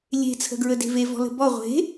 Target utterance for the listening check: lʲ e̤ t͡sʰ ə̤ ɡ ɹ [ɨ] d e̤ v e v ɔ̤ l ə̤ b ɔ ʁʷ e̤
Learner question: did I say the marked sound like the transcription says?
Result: no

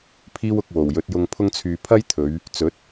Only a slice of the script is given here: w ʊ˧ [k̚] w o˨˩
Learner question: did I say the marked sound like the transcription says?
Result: yes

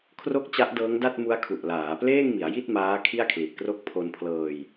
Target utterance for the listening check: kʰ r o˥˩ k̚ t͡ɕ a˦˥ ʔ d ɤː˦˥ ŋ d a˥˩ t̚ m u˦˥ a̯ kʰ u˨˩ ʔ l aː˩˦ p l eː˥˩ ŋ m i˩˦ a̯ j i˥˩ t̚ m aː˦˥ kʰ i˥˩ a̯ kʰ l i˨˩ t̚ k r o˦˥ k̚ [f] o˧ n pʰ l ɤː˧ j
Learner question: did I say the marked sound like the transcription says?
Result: no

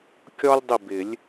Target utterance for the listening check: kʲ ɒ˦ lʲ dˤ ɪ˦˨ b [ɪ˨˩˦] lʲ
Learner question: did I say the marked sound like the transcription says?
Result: yes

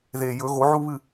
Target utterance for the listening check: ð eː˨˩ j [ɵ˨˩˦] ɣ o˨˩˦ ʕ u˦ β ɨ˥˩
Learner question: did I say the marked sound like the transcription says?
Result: yes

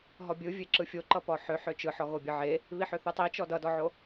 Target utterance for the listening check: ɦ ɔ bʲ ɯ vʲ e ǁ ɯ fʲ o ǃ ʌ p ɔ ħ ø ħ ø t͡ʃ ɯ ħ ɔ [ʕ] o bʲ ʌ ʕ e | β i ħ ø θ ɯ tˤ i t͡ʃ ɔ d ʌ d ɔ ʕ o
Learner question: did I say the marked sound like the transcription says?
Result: no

